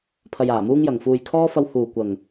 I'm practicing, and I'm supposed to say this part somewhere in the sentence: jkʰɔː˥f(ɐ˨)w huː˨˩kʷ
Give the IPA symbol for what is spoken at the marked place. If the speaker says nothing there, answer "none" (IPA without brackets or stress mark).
ɐ˧